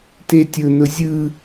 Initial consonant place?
alveolar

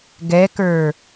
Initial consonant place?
velar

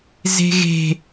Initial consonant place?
alveolar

